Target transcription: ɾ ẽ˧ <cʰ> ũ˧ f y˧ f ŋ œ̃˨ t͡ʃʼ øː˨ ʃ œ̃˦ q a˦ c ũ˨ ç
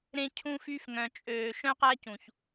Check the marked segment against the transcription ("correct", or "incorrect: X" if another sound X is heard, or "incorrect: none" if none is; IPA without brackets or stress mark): correct